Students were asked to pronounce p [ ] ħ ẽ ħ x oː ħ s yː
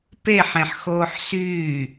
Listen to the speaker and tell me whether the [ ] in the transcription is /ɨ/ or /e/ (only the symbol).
e